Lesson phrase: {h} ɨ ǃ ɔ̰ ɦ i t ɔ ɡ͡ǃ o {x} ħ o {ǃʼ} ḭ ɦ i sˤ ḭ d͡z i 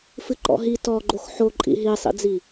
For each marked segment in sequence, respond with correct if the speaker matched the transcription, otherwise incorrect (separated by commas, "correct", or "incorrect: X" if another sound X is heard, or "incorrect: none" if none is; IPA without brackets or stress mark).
incorrect: f, correct, correct